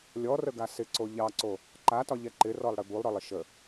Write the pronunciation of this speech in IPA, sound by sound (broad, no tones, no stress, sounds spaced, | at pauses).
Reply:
lʲ ɔ r ə ɡ a s ɪ ǀ o ʎ ɑ ǀ o | ǃ a t ɒ ʎ ɛ ǃ ɪ r ɔ lˠ ɽ ɪ b u lˠ ɾ ɔ lˠ ɪ ʃ ə